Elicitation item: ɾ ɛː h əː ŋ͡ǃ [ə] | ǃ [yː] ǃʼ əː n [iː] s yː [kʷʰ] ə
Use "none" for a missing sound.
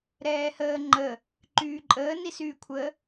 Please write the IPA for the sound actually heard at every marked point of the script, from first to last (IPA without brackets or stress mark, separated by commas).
ə, yː, i, kʷʰ